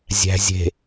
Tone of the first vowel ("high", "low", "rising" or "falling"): low